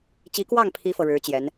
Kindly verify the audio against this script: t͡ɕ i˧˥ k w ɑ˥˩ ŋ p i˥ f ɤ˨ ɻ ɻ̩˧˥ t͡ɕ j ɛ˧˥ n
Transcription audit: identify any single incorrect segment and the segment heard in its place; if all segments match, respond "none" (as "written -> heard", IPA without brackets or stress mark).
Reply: p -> pʰ